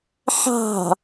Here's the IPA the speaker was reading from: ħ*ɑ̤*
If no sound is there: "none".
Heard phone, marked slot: ɑ̤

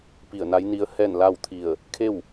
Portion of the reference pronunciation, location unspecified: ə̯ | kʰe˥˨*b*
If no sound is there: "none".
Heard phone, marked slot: w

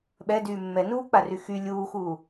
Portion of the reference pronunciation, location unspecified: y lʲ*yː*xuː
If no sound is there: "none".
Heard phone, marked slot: uː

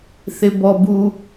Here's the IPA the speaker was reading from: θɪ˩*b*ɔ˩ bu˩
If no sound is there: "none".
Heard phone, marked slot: b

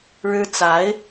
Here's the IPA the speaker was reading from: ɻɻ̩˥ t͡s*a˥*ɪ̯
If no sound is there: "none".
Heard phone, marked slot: a˧˥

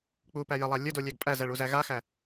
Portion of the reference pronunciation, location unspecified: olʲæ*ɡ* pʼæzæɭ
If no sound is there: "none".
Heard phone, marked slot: ɡ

